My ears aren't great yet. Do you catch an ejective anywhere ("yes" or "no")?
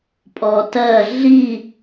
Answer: yes